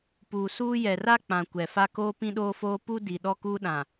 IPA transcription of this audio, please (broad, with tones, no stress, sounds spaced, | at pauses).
p uː˨ s uː˦ j ɛ˨ r a˦ k͡p ã˨ kʷ ɛ˨ f a˦ k oː˦ p ĩ˦ ɗ oː˦ f oː˦ p u˦ d i˨ ɗ ɔ˦ k uː˦ ɗ ã˨